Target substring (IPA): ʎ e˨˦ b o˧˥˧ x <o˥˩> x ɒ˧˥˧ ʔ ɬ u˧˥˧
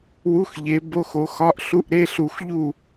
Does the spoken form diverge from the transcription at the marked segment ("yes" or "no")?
yes